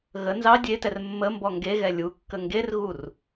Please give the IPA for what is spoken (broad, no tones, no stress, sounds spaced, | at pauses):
ɣ ə n z ɑ dʲ e t ɛ r mː ə m b ɔ ŋ ɡ e ɣ ɛ lʲ u kː ə ŋ ɡ e r ɣ u r